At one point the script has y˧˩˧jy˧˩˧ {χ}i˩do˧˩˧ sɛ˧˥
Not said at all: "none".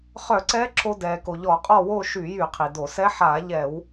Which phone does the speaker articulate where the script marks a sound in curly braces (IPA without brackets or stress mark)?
qʰ